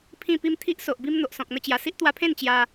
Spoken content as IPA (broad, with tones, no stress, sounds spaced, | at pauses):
pʰ ĩ˧ p i˧ m t̪ʰ i˦ ʔ s o˨ ʔ b i˧ m n̪ o˨ ʔ s ɔ̃˨ k̚ n̪ ə˧ t͡ɕ j a˨˩ s i˦ ʔ t̪ w a˧ pʰ ẽ˥˧ n t͡ɕ j a˧